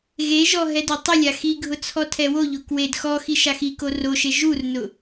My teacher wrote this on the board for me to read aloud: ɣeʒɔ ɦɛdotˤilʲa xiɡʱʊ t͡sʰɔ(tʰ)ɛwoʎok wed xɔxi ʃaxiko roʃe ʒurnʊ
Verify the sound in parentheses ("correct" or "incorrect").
correct